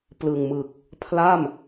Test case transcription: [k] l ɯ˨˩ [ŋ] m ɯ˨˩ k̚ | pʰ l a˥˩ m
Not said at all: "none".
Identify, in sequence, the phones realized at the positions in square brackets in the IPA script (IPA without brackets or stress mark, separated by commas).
p, ŋ